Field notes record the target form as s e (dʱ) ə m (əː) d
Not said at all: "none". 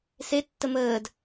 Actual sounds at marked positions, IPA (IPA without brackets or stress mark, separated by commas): tː, əː